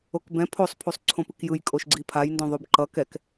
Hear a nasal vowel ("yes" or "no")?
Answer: yes